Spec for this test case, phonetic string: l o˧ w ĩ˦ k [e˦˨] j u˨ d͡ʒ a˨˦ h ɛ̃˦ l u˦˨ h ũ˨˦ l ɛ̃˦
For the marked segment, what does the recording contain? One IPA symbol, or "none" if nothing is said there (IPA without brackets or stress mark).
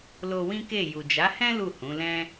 e˦˨